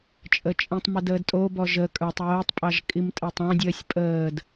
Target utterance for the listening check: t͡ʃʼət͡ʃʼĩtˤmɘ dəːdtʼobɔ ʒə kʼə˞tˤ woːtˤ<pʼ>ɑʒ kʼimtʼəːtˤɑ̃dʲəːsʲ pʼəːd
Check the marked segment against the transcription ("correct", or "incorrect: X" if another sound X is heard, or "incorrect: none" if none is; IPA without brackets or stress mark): correct